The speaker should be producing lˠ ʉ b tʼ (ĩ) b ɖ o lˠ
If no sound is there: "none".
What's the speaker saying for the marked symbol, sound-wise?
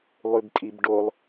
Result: i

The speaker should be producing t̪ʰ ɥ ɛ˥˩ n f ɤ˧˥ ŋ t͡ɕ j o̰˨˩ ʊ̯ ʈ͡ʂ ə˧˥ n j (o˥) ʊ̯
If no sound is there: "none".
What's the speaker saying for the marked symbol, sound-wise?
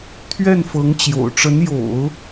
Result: o̰˨˩˦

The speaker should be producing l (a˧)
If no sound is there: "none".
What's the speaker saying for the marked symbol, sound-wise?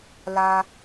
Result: a˧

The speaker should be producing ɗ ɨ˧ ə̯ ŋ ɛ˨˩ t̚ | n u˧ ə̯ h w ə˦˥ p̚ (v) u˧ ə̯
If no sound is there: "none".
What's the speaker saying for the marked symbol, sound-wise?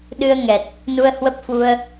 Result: f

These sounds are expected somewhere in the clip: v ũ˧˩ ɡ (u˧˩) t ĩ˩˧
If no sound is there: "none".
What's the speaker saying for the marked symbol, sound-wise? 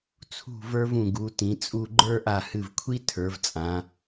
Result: u˩˧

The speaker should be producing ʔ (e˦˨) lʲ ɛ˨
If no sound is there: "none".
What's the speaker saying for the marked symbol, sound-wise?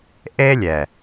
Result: e˦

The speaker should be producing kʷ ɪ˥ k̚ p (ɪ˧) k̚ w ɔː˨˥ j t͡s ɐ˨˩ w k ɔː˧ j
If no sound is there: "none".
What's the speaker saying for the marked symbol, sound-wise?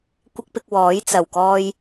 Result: ɪ˧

